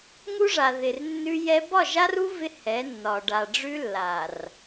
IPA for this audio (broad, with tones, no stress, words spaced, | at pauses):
ŋu˦ʐa˨ ðɪ˨rnːʉ˦jɛ˦ bɒ˦˨ʒa˦ru˦ vɪ˦ hɛ˨˦nːɒ˨ ɖa˨ ɖ͡ʐʉ˦lːa˨r